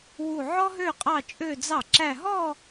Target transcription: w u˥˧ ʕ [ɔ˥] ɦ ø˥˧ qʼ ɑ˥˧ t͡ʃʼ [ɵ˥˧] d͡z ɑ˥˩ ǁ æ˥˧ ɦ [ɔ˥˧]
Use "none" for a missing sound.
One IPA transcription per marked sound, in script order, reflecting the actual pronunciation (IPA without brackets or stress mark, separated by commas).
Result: ɔ˥, ø˥˧, ɔ˥˧